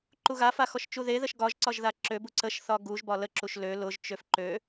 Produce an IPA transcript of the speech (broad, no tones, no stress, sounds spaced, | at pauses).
ǃ u ɣ a f a x ɔ ʃ t͡ʃ u ð e ð ə ʃ ɡ ɒ ʒ ǀ ɒ ʒ ð a ǁ ø b u ǀ ə ʃ θ ɒ ɡ u ʒ b ɒ l ə ǁ u ʃ l ø l ʊ ʒ t͡ʃ ø f ǃ ø